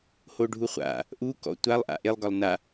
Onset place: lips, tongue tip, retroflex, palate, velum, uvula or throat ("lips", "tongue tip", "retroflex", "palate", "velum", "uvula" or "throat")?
throat